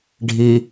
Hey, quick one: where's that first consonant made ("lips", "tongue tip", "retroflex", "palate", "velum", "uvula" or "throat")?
retroflex